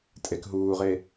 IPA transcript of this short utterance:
tʼekɦuːʁe

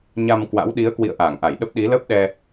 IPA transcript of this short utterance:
ɲa˧m kwa̰˧˥wɗi˨˦ə̯kwḭ˧˨ə̯ ʔaː˧˩ŋʔa˧˩jɗə˦˥p̚ ɗi˨˦lə˦˥p̚ɗɛ˧

